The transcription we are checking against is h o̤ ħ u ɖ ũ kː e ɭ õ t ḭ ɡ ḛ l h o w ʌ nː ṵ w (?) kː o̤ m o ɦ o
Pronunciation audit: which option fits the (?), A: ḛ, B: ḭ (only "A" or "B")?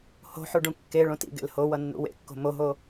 A